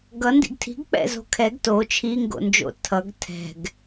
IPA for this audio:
ɡ ʌ n d ḭ ɡ tʰ i̤ ɡ k͡p ɛ̰ z o̤ kʰ ɛ ɡ t o t͡ʃʰ i ŋ ɡ o̰ n d͡ʒ o̰ tʰ ʌ ɡ tʰ ɛ̤ ɡ

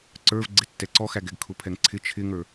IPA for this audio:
ǀ ə˞ v ɡ͡ǀ ɪ tː ɛ ǀ ɔ x æ ɡ ɛ ɡ kʰ ʊ pʰ ɛ ŋ ǀʰ ɪ t͡ʃʰ ɪ ŋ ə˞

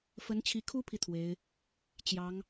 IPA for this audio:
f ə˧˥ n t͡ɕʰ i˧˥ kʰ u˥ pʰ i˨ t̪ʰ w e˧˥ ɪ̯ | t͡ɕ j ɑ˧˥ ŋ

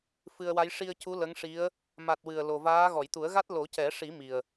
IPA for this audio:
f ɨ˧ ə̯ w a˧˥ j ʂ i˧ ə̯ c u˧˥ l ə˧˥ ŋ ʂ i˧˥ ə̯ | m a˨˩ t̚ w ɨ˨˩ ə̯ l o˨˩ v aː˧˥ ɣ ɔ˨˩˨ j t̪ u˨˩˦ ə̯ ɣ a˦˥ t̚ l o˨˩˦ c ɛ˨˩˦ ʂ i˨˩˦ m i˨˩ ə̯

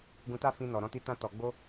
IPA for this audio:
ɡ ũ˧ t a˦ f ĩ˧ n ɔ˨ ɾ ɔ̃˧ t i˧ t ã˧ t ɔ˨ ɡ͡b o˧

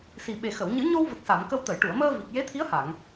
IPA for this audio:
s i˨˩ ɓ e˨˩ x ə˨˩˨ w ɲ ɨ˨˩˦ ɲ o˧ w v ə˨˩ k̚ s a˨˩˨ m k ə˧ w t̪ ə˨˩˨ j ʈ u˨˩˨ ə̯ m əː˧ v i˨˩ k̚ j e˧˥ t̪ʰ i˧˥ ə̯ h a˨˩˨ ŋ

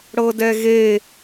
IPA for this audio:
ɽ ɤ d ɛ ɣ e

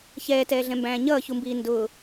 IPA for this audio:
ç ɛː t ɛː ɮ ɛ̃ m b æ̃ː ɲ ʌː ç u m b iː n d ʊː

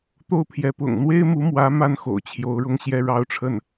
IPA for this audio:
t̪ o˥˩ ʊ̯ pʰ j ɛ˧˥ p ʊ̰˨˩ ŋ n̪ w e˥ ɪ̯ m u˧˥ m w ä˧˥ m a˥˩ n x o̰˨˩ ʊ̯ t͡ɕʰ j o˧˥ ʊ̯ ɻ ʊ˥ ŋ ɕ j ɛ˥ ɻ ɑ˥ ʊ̯ ʈ͡ʂʰ ə˥˩ n

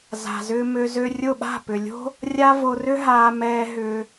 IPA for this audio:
z a̤˨ z ʏː˧ m ø˧ z ø˧ rʲ ʊ˦˨ ɓ a̤˦˨ p ʏ˨ lʲ o̤˦ | rʲ a˦ v o˧ r ʏ˦ ɦ aː˧ m ɛː˧ ɦ ʏː˧

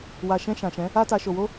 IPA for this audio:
w a˨ ʃ ɛ̃˧ ʃ ã˨ ʃ ɛ̃˨˦ | a˧ t a˨ ʃ o˨ w o˧

